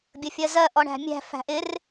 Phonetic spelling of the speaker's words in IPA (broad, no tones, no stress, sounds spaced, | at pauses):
bʲ ə fʲ ɜ z ɜ ʔ ɔ ɳ æ̤ mʲ æ̤ f æ̤ ʔ ɪ r